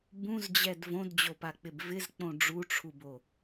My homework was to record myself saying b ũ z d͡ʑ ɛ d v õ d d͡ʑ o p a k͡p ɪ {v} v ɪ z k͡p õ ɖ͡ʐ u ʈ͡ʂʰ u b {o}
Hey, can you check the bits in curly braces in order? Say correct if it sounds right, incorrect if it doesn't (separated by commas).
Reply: incorrect, correct